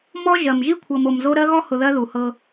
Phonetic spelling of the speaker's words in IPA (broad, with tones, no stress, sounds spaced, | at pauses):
m ɔ˦ ʒ ɜ˨ m ʒ i˦ kʷʰ ɤ˨ m o˨ m z o˦ ɾ ɜ˦ ɣ ɔ˦ h ʊ˨ ð ɜ˦ ð u˨ h ɤ˦